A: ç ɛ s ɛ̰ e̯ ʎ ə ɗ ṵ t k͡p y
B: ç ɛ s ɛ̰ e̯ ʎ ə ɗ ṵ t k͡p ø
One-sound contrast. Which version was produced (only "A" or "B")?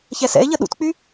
A